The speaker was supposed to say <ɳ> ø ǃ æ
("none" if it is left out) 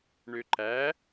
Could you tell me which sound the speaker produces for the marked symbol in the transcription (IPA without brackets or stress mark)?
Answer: ɳ